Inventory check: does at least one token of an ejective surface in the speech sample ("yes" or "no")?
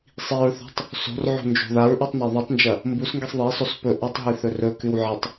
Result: no